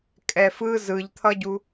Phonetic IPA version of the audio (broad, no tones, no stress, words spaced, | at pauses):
kʼɛfɯ zɯʎt̪ʰʌɟu